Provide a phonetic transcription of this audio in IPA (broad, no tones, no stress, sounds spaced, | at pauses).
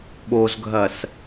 ɓ o z ɡʱ ɐ s